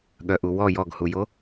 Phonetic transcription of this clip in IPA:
ɠ œ ʔ u w ɔ j ɔ ɡ h u j o

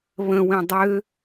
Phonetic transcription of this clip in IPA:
β ə̃ w ĩ dˤ ø

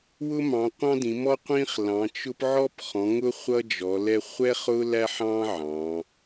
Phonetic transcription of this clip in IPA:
w ʊ˦ m ɑ̃˩˧ qʷ ɑ̃˦ d ĩ˩˧ m ɔ˦ qʷ ĩ˦ χ l ɑ̃˩˧ t͡ʃ ʊ˦ p ʕ ɔ˦ p χ ɔ̃˩˧ ŋ ʊ˦ χʷ ʌ˦ d͡ʒ ɔ˩˧ l ɛ˦ χʷ ɛ˦ χ ʊ˦ l æ˦ ħ ɑ̃˦ ʕ ɑ̃˩˧

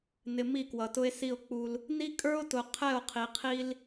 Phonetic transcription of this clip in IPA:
n ɪ˨ m i˦˨ k w ʌ˨ t ʊ˦ e̯ s i˦˨ o̯ k͡p u˦ l | n i˦ kʼ ə˞˦ o̯ t ʊ˨ qʰ ɛ˦˨ o̯ qʰ i˨ qʰ i˦ l

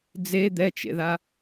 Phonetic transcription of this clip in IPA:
d͡z e d̪ ɛ t͡ʃ ḛ ð a

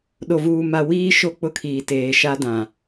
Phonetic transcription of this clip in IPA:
ɗ o˨ v uː˨ m a˨ w iː˦ ʃ o˦ k͡p ʊ˦ kʰ iː˨ t eː˨ ʃ a˦ d ã˨

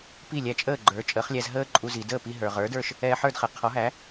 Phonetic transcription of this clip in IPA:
p i˥˩ lʲ æ˧ t͡ʃʼ əː˥˩ ɡ͡ǃ ə˞˩˥ t͡ʃʼ əː˩˥ χ lʲ æ˧ z ɦ əː˥ ǃʼ u˧ z i˩ d əː˥˩ p i˧ ɦ ə˞˩ ʁ ə˞˩˥ d ə˞˥˩ ʃ | ɛː˧ ħ ə˞˥˩ d χ ɛ˩ qʰ ɔ˩˥ ɦ æ˩˥

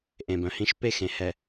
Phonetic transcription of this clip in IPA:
ʔ ẽ˨ b œ̃˨ h ĩ˦ ʃ p e˦ x ẽ˨ h ɛ˨

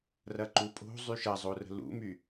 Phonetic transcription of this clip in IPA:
r ɐ ǃ u pʼ o̤ zˤ y ʃ ɐ zˤ o r ə̤ l ṵ m y

